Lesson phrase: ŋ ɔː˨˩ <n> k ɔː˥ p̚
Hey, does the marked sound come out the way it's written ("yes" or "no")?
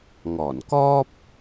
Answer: yes